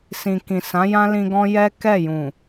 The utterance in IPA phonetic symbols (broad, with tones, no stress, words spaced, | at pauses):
sĩ˨kĩ˨ sã˨˦jã˦lĩ˧ ɡɔ̃˦jɛ˦kɛ˦˨ jũ˨